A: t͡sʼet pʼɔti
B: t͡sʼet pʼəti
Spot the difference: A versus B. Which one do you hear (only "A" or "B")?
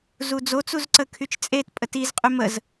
B